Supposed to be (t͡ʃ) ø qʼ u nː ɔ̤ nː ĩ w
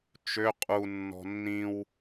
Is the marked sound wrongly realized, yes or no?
no